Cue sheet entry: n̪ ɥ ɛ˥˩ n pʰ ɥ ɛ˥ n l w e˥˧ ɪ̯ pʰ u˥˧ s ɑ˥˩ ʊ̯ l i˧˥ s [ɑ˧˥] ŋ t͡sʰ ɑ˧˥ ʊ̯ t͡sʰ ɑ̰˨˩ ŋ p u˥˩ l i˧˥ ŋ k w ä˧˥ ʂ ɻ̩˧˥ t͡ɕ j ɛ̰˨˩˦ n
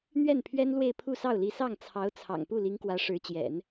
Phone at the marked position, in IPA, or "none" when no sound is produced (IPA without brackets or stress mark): ɑ˥˩